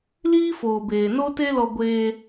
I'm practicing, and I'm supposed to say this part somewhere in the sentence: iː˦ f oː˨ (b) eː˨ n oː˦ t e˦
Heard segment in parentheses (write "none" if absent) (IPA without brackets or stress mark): b